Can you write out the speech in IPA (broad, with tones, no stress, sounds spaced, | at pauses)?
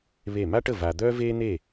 β e˥˨ m a˥ ʈ ə˥˨ v a˧ d̪ œː˥ v eː˥ n̪ e˥˨